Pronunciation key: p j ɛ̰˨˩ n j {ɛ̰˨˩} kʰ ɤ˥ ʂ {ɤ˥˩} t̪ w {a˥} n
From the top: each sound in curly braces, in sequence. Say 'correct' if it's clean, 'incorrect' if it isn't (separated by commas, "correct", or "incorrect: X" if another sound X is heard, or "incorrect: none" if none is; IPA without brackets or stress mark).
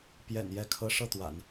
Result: incorrect: ɛ˥˩, correct, incorrect: a̰˨˩˦